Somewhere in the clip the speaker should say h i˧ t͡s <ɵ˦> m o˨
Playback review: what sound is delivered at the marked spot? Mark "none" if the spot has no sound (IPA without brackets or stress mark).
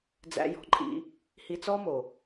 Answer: ɔ˦